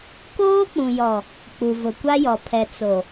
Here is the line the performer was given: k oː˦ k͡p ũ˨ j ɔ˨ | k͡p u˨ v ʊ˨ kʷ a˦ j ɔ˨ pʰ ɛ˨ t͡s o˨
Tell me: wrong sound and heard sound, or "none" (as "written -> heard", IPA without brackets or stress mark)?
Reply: none